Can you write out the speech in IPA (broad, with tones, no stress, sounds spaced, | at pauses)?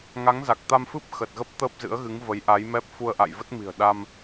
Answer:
ŋ a˨˦ ŋ z a˨˩ k̚ t̪ a˧ m f ɨ˦˥ p̚ x ə˨˩ t̚ ɣ ə˦˥ p̚ t̪ əː˦˥ p̚ z ɨ̰˧˥ ə̯ ɣ ɨ˨˦ ŋ v ə˨˦ j ʔ a˨˦ j m ɛ˦˥ p̚ f u˧ ə̯ ʔ a̰˧˨ j v ə˦˥ t̚ m i̤˨˩ ə̯ ɗ a˧ m